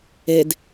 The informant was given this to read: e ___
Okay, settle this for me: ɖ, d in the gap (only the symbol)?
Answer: d